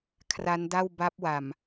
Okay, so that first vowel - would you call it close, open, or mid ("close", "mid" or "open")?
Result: open